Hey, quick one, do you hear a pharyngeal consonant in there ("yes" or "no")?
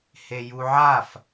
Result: yes